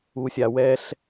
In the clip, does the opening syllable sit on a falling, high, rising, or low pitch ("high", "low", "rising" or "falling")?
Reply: low